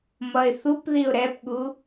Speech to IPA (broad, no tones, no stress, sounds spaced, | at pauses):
m ʌ ɪ̯ θ u p ð i ʊ̯ ɾ ɛ p ɠ u